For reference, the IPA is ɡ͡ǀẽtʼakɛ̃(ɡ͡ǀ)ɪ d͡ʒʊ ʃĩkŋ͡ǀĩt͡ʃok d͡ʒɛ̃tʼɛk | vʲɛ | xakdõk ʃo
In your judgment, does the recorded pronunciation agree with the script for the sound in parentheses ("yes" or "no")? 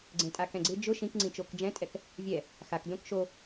yes